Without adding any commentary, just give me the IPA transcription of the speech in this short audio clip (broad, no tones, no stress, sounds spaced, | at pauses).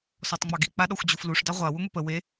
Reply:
s ɔ tˤ ŋ͡m ɑ ɡ i k͡p a ɗ ɔ xʷ d͡ʑ u f l u ʂ d ɑ ʁʷ a w u ŋʷ i p ə w e